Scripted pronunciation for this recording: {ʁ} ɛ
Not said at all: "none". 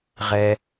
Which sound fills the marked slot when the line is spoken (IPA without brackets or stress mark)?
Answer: ʁ